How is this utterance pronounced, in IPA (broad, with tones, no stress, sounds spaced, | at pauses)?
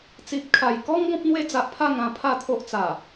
t͡s i˨ p̚ kʰ a˨˩ j k ɔ˦ ŋ ɡ ɔ̃˦ p̚ n̪ w e˦ d͡z a˨ ʔ pʰ a˥˧ ŋ ã˧ pʰ a˥˧ t̪ʰ o˦ ʔ t͡s a˨˩